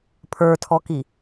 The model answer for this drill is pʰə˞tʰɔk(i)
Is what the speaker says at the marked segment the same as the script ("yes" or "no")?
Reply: yes